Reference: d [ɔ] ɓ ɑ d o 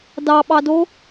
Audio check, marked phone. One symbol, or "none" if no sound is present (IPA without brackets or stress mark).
ɑ